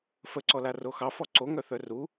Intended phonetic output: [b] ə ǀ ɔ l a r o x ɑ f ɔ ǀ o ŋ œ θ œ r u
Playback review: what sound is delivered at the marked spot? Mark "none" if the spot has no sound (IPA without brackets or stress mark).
f